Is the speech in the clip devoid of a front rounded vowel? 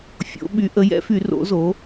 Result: no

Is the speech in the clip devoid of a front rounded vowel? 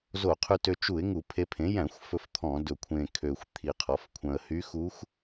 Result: no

